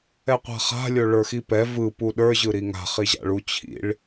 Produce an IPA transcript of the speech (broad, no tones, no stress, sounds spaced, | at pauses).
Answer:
ɛ qʷ a̤ χ a̤ lʲ o ɭ ə˞ x i p ɛ v ɯ p u ɗ ə˞ ʑ ɯ ɾ i ŋ a̤ χ i ʑ a̰ ɭ u t͡ɕʰ ḭ ɭ